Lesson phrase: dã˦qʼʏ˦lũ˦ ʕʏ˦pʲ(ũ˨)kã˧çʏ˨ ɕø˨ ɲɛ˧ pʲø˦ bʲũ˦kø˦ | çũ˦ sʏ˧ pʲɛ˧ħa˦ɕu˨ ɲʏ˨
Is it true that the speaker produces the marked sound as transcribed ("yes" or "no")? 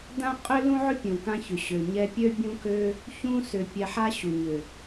yes